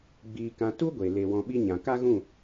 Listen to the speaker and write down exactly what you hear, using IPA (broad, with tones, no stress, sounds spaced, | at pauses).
ɡ͡b iː˨ k ã˨ t u˦ ɡʷ e˨ l e˧ w ɔ̃˧ ɓ i˦ ɲ ã˨ k a˦ ɣ ũ˦˨